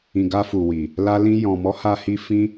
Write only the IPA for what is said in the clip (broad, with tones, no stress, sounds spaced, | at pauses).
ĩ˨ ɡ a˧ f u˨ w i˨ | l a˧ l ĩ˧ j ɔ̃˨ m ɔ˨˦ h a˦ h i˦ f ĩ˦